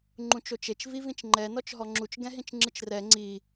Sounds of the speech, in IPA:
ŋ͡ǃ ũ t͡ʃ o t͡ʃ e t͡ʃ v i v ĩ t͡ʃ ŋ͡ǃ ɛ n ɔ t͡ʃ ɦ ɔ ŋ͡ǁ u t͡ʃ ɡ ɛ̃ ɦ ĩ t͡ʃ ŋ͡ǁ ɯ t͡ʃ r ɛ ŋ͡ǀ i

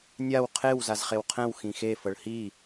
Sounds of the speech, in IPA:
nʲ a w qʰ e w z a z χ e w qʰ ɛ̃ w x ĩ x e f ɤ ɭ h i

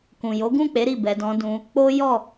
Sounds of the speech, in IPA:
k ũ˨ j o˨˦ ɡ ũ˦˨ k͡p e˨˦ ɾ i˦˨ b ɛ˧ d ɔ̃˧ d ũ˧ | k͡p o˦ j ɔ˦˨

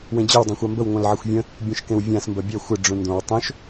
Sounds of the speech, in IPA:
w ẽ d͡ʑ ɜ w dˤ õ xʷ a m b ə w ŋʷ œ̃ l ʕ ɪ xʷ vʲ ə̃ | bʲ ũ ʃ k ẽ w vʲ ã s m b ɜ bʲ œ xʷ ɪ ɖ͡ʐ ũ n d õ w tˤ õ ʃ

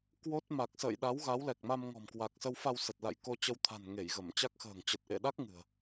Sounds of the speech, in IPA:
k w o˦˥ t̚ m a˨˩ k̚ s ə̰ː˧˨ j ɗ a˨˦ w ɣ a˨˦ w l ɛ˨˩ k̚ m a˧ m ŋ ɔ̤˨˩ m k w a˨˩ k̚ s ə˧ w f a˧ w s ə˨˩ t̚ l a̰˧˨ j k o˧ t͡ɕ ə˧ w t̪ʰ a̤˨˩ n ŋ e˧˩ j ɣ ə˧˩ m t͡ɕ a˦˥ k̚ x ə̤ː˨˩ ŋ t͡ɕ ə˨˩ t̚ ʔ ḛ˧˨ ɗ a˦˥ k̚ ŋ ɨ̤˨˩ ə̯

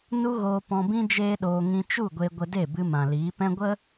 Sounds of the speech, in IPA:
n u˦ ɣ oː˧ p ɔ̃˧ b ĩ˦ d͡ʒ eː˦ ɗ oː˧ ŋ ĩ˧ t͡ʃ u˦˨ ɡʷ e˧ ɡʷ ə˧ d e˦˨ b ɨ˧ m ã˨ l iː˨˦ p ɛ̃˦ ɡʷ ə˦

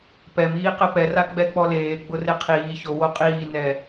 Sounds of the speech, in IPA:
p ɛ m iː q ɛ p ɛ r a ɡ͡b ɛ k͡p ɔ l eː ɡ͡b ʊ r e qʰ iː ç o w o qʼ iː n ɛ

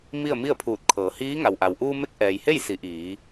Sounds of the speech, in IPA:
m i˥˨ ə̯ m i˥˨ ə̯ pʰ uː˧˩ t̚ kʰ ɤː˩˧ h iː˧˥ ŋ a˩ w ʔ a˩ w ʔ uː˧ m e˧˥ k̚ ʔ ɛː˩ j h e˥˨ j s i˩˧ ʔ iː˩˧

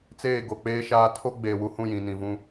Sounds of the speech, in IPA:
t͡s eː˦˨ ɡ o˨ k͡p eː˦ ʃ aː˦ tʰ o˦ ɡ͡b eː˨ w u˨ h ũ˦˨ j ĩ˨ n ĩ˨ v ũ˦

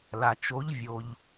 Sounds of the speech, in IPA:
l a˨ t͡ʃ o˧˥ ʎ vʲ o˨ ʎ

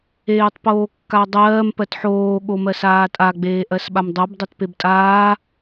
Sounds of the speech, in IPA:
eː tˤ p oː kː a dˤ ɜː m p ɜ t ħ oː ɠ o m ɜ s aː tʼ a ɡ͡b eː ʔ ɜ s ɓ a m dˤ ɜ b dˤ e t p e b tʼ aː

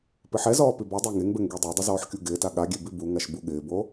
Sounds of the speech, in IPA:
p ɪ ħ ɛ z ɔː p i b ɔ dˤ ʊː ŋ e ŋ b ɛ ŋ ɡ e dˤ ɛ dˤ ɪ z ɔː ħ kʲ u ɡ ɪː t a ɠ a ɡʲ ɛ b i b u ŋ a ʃ b u ɠ ɪː b o

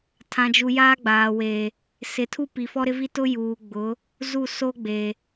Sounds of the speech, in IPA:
tʰ ã˨ d͡ʒ u˨ j aː˦ ɡ͡b aː˨ w eː˨ | s ɪ˨ tʰ u˦ p i˨ f ɔ˦ ɾ ɪ˦ v i˦ t ʊ˦ j uː˨ ɡ͡b ʊ˨˦ | z u˦˨ s o˦ ɡ͡b e˨

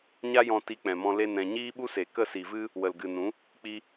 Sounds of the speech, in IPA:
ɲ a˦ j ɔ̃˧ t i˧ k͡p ɛ̃˨ m ɔ̃˧ l e˧ n ɛ̃˨ ɲ iː˦ ɓ u˦ s e˨ k ə˦˨ s i˨ v ɨ˦ | w ə˨ l ɡ ɨ˨ n ũ˨˦ | k͡p i˧

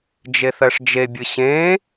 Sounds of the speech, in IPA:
d͡ʒ e θ ɜ ʂ d͡ʒ e bʲ ɨ ɕ ẽ

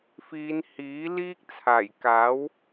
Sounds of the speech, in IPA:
f iː˨˧ n h iː˨˥ l iː˥ k̚ t͡sʰ aː˨˩ j k aː˨˥ w

